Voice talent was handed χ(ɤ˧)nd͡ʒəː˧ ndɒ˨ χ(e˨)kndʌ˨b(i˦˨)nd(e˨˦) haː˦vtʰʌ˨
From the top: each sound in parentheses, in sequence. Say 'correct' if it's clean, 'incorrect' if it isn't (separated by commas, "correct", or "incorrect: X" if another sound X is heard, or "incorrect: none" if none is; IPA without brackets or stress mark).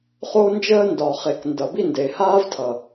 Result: incorrect: o˧, correct, correct, incorrect: e˨